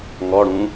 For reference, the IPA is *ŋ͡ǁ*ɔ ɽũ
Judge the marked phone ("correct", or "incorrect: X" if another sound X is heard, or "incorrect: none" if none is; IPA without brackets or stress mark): incorrect: ŋ